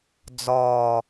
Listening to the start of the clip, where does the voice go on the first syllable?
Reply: low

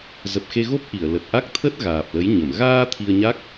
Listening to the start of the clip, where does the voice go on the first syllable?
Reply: low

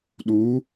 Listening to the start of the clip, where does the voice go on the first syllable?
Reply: rising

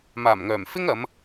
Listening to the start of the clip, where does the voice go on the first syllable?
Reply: low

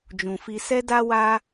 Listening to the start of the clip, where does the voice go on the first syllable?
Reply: low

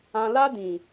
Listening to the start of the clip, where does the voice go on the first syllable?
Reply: low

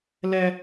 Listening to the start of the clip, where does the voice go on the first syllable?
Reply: high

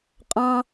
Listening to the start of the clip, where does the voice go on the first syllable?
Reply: high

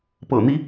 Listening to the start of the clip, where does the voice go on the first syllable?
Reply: low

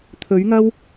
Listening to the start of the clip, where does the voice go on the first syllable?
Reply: rising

